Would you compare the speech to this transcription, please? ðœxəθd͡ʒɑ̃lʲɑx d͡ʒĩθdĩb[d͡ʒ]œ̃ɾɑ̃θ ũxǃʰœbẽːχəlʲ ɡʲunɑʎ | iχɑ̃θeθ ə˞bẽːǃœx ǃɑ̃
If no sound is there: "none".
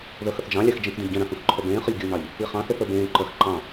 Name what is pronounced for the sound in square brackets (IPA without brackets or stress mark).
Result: ɟ